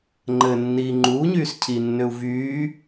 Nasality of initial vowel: oral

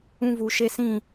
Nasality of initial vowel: nasal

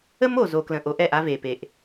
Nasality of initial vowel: oral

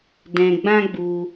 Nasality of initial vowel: nasal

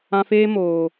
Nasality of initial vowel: nasal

